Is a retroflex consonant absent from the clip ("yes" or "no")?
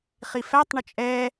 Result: no